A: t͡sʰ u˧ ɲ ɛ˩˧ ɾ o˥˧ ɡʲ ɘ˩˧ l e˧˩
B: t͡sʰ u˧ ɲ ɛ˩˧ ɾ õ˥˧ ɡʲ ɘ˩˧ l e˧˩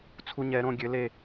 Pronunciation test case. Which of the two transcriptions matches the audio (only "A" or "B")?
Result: B